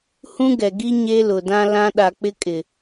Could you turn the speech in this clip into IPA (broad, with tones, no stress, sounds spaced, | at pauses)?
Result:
h ũ˦ ɡ ɛ˨ ɡ i˦ ɲ e˦ l ʊ˨ d ã˦ l ã˦ ɗ a˨ k͡p ɪ˦ kʼ ɪ˨